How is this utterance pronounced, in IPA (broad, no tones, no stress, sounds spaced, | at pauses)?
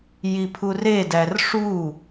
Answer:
j i pʰ u r e d æ r ʂ u